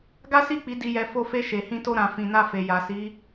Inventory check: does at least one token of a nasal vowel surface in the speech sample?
yes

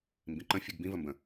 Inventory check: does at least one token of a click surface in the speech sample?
yes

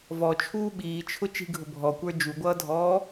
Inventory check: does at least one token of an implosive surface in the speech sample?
yes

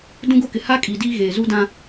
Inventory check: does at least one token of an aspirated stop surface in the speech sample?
no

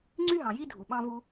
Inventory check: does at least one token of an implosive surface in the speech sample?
yes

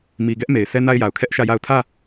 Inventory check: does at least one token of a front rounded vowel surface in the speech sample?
no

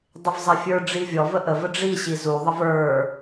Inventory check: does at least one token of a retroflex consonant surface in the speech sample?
yes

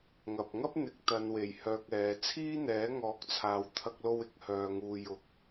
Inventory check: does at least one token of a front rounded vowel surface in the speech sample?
yes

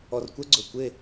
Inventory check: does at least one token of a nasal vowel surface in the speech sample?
no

